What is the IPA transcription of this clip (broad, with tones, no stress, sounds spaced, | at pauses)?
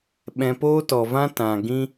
ɓ ɛ̃˧ p oː˦ t ɔ˨ v ã˦ t ã˨ ɡ ĩ˧